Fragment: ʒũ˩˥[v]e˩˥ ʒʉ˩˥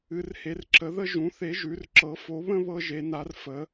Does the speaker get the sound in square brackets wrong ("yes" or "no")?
yes